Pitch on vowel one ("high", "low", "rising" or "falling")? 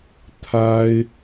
high